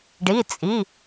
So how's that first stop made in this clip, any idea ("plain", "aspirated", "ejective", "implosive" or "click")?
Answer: plain